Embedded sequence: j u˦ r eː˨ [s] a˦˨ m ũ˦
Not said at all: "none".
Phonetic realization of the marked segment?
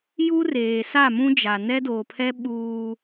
s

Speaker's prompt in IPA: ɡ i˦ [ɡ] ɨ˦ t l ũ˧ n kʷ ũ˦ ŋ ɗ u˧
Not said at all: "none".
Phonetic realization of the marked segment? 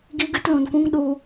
ɡ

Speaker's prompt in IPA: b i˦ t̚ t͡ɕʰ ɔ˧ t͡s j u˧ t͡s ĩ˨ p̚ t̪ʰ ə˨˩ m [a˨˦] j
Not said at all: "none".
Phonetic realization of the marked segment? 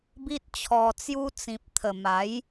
a˨˦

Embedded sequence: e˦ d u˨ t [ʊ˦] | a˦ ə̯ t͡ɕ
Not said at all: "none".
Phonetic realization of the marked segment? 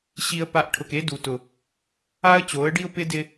ʊ˨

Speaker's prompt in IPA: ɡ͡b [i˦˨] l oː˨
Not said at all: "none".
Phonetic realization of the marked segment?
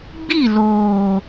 i˦˨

